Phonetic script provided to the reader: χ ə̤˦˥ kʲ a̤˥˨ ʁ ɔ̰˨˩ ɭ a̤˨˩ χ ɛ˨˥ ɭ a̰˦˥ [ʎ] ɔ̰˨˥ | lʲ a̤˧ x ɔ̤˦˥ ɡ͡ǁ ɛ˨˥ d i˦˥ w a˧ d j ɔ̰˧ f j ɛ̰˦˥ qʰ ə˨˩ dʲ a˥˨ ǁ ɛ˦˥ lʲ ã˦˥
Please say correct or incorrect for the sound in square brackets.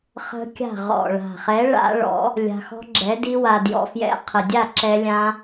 incorrect